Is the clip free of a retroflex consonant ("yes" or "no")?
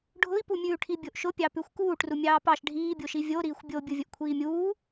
no